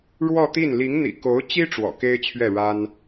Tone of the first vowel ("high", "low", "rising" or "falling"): falling